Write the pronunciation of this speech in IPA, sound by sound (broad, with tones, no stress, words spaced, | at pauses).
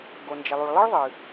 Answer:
ɡo˩nd͡ʒə˩lˠu˩ɭ lˠə˦ɭðˤɨ˩